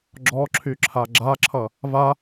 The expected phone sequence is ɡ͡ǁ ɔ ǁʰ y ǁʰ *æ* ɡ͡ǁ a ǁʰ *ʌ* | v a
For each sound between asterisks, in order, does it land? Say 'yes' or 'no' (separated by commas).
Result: no, yes